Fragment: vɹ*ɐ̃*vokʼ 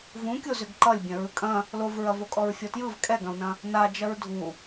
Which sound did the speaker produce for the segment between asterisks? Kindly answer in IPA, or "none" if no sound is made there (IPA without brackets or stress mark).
ɐ